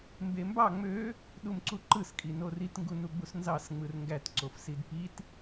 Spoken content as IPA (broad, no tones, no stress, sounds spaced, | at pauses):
m b e m b ɑ ŋ͡m ø | ɗ u m ǀ u ǃ ɯ s kʼ i n o r i t ŋ ɡ u n u ɡ͡b u s n z ɑ s ŋ͡m ɯ r ŋ ɡ æ t ǀ o f s i d p i t